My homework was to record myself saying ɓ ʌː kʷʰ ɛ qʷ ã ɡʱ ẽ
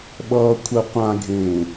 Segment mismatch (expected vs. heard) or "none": none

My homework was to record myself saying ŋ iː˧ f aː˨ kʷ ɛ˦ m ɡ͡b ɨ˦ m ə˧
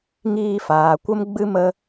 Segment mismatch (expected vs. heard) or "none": ɛ˦ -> ə˦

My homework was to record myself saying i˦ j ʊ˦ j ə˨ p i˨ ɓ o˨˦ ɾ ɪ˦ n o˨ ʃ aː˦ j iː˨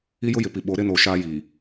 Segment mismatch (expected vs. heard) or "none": ə˨ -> ɪ˨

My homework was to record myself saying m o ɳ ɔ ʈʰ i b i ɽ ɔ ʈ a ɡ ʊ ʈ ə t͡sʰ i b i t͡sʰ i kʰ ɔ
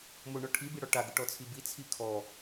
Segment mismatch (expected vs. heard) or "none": ə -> ɔ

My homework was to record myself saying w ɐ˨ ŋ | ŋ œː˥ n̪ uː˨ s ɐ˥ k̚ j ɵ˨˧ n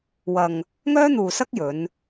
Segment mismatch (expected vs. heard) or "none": none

